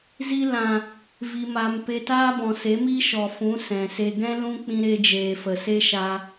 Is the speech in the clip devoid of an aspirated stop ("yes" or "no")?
yes